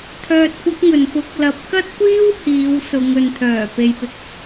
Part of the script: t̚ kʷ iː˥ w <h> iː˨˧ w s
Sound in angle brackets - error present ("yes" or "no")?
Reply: no